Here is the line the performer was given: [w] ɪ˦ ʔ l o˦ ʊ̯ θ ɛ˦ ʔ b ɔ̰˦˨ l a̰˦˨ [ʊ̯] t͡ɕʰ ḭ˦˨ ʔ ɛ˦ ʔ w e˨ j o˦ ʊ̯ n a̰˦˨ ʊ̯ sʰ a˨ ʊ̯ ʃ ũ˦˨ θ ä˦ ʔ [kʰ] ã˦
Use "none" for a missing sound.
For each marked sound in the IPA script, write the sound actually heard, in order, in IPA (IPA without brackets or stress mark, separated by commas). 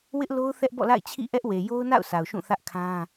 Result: w, ɪ̯, kʰ